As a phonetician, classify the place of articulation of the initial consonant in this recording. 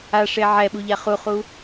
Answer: retroflex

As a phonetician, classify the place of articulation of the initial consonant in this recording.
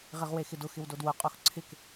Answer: uvular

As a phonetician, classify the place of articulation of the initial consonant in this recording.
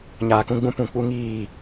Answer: palatal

